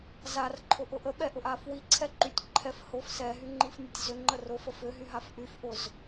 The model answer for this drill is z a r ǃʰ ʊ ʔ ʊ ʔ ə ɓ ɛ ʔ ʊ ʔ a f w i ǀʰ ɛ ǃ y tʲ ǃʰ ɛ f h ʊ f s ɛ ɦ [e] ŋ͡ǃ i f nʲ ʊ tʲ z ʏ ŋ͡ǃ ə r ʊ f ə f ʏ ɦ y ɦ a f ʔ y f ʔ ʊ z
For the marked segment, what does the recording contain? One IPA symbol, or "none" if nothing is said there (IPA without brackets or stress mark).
y